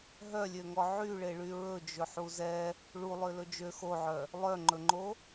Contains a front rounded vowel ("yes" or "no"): yes